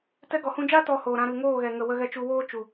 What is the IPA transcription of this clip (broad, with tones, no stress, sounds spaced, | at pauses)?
t ɛ˧ ɡ ɔ˨ h ũ˧ d͡ʒ aː˦ t ɔ˧ h oː˨ ɾ ã˧ ɾ ɨ˨ ŋ oː˦˨ ɣ ɛ˨ ŋ ə˨ w ə˧ ɣ ɛ˧ t͡ʃ u˧ w oː˦ t͡ʃ u˨